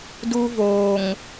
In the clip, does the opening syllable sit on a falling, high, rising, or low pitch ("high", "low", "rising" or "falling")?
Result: high